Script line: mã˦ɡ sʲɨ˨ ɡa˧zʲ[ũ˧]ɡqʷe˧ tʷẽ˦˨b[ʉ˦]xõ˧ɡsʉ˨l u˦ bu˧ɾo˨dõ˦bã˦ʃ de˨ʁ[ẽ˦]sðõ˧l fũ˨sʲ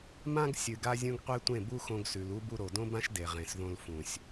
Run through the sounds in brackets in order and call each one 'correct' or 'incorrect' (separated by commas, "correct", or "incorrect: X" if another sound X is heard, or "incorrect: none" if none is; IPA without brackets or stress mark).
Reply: correct, incorrect: u˦, incorrect: ẽ˨